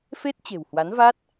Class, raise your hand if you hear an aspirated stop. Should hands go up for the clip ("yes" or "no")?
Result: no